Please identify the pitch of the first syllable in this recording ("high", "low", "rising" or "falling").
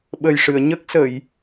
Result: low